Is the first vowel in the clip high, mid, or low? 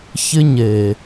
high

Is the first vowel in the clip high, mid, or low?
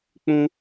high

